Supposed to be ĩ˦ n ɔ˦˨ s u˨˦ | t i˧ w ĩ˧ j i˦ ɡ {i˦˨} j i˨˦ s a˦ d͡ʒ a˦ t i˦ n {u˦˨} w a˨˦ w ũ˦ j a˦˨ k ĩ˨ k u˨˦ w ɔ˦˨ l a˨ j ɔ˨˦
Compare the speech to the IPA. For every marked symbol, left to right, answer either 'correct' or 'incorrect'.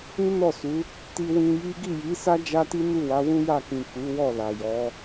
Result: correct, correct

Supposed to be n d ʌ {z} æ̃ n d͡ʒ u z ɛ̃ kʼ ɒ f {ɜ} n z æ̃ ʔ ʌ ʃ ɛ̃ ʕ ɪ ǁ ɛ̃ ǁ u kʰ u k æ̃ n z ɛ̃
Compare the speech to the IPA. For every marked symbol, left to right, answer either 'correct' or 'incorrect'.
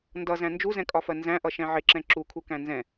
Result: correct, correct

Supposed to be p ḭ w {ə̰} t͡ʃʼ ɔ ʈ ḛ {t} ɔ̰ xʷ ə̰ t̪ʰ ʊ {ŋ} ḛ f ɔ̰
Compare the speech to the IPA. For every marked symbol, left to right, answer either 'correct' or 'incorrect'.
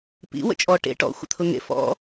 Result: correct, incorrect, correct

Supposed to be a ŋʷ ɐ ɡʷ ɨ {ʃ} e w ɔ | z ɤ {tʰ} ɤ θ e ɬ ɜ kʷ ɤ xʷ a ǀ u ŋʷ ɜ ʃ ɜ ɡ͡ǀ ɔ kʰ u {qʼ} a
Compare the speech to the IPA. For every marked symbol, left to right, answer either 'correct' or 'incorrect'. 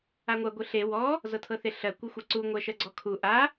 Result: incorrect, correct, incorrect

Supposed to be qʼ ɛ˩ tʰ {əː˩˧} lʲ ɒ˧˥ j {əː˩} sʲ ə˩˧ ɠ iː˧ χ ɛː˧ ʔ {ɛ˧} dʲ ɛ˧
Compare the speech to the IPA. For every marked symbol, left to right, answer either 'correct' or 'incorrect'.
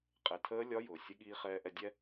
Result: incorrect, incorrect, correct

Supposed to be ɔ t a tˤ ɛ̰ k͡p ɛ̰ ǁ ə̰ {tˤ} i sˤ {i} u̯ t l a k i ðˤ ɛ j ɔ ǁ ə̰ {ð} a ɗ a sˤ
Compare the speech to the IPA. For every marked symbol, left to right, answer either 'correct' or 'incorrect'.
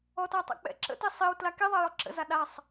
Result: incorrect, correct, incorrect

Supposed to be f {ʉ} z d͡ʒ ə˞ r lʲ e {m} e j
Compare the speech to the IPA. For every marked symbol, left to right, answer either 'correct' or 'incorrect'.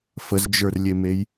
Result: incorrect, correct

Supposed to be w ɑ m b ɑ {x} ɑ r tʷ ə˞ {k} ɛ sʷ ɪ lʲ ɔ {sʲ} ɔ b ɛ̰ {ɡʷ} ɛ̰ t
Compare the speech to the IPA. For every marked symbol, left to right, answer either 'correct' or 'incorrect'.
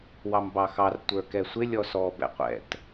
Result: correct, correct, incorrect, incorrect

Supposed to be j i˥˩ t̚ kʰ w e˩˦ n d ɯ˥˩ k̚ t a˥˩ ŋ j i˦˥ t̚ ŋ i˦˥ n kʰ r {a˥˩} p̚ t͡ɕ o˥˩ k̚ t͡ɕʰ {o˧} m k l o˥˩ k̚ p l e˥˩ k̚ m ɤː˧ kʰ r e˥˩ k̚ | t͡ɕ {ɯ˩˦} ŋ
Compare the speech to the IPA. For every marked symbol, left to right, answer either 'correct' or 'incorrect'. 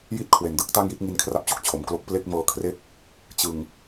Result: correct, incorrect, incorrect

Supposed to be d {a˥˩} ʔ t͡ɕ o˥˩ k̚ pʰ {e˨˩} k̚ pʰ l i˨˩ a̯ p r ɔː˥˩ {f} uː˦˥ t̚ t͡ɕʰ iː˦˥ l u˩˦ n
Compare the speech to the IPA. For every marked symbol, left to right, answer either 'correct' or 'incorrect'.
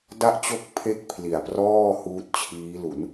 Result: correct, incorrect, incorrect

